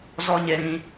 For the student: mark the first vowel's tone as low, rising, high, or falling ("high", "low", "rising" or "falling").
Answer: high